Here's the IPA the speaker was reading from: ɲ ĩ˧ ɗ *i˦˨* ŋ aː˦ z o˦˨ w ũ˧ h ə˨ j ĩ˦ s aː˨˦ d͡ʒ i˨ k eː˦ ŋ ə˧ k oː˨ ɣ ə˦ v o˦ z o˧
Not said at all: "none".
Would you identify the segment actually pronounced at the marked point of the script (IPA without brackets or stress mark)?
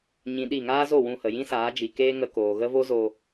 i˦˨